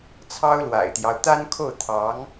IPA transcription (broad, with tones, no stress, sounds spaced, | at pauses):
t͡sʰ ɑ˥ ʊ̯ l w a̰˨˩ ɪ̯ t̪ j ɑ˦ ʊ̯ t̪ a˥ n kʰ o˥˩ ʊ̯ t̪ʰ ɑ˧˥ ŋ